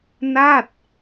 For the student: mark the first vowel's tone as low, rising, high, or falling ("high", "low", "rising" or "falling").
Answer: falling